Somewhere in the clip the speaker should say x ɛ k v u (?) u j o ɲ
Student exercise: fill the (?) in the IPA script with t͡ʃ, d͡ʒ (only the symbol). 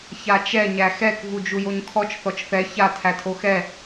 d͡ʒ